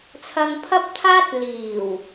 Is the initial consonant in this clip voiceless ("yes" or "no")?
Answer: yes